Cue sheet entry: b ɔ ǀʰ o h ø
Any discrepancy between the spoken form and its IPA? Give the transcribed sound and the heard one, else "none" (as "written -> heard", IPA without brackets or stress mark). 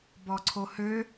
none